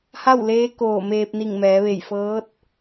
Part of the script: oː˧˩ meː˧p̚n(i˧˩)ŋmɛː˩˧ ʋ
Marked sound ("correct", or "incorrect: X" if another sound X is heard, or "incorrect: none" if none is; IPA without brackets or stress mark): correct